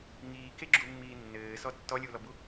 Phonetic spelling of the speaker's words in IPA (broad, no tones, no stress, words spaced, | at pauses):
ŋiːkeɡ͡ǁumːiː nːɘːsɔ tːɔlʲulɔbu